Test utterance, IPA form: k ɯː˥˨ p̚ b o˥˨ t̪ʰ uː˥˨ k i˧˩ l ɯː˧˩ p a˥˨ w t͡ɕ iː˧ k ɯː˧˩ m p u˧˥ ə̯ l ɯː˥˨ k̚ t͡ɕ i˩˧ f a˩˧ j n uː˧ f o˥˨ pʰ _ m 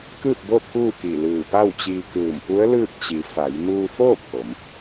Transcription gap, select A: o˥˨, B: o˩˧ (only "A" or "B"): B